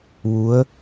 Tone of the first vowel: rising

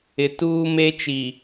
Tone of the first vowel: low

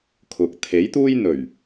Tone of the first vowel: low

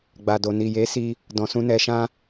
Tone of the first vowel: low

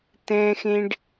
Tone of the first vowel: high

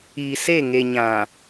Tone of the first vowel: low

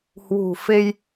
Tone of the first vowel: low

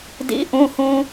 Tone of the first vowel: rising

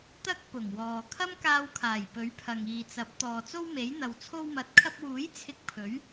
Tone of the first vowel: high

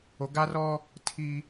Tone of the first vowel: low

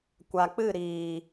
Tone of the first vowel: low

